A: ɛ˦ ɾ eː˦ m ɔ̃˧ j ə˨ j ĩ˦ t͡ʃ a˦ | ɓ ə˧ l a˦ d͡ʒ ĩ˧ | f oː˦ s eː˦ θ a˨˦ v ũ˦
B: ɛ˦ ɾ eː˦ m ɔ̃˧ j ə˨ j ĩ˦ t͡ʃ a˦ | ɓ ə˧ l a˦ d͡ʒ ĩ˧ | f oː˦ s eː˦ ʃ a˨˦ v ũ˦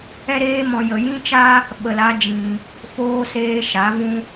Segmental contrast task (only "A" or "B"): B